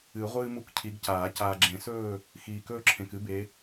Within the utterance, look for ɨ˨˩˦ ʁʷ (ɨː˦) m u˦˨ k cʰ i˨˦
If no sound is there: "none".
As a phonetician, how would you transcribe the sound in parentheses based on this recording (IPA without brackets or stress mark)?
ɨː˦